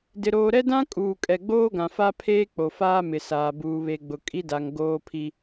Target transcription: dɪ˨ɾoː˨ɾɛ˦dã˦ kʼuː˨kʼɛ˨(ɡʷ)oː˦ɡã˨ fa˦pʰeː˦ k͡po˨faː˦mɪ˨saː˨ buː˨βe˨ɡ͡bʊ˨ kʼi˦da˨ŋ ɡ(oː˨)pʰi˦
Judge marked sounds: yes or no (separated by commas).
no, no